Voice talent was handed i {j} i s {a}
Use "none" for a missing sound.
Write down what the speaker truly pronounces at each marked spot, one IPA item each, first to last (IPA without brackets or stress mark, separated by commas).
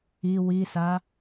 w, a